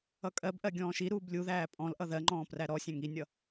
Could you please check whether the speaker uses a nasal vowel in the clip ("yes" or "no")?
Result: yes